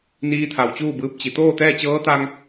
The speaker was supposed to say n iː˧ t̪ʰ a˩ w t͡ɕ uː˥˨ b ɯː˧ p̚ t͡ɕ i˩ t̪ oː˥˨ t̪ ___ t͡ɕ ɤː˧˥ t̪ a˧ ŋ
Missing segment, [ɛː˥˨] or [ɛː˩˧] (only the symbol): ɛː˥˨